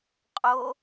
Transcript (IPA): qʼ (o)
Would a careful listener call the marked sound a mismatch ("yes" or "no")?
no